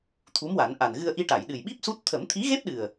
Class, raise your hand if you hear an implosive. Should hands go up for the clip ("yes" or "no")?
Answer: yes